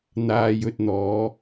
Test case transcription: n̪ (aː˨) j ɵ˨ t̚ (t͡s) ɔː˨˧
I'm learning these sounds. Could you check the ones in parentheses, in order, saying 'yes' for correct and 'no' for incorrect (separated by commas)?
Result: yes, no